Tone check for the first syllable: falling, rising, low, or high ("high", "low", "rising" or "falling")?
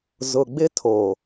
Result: low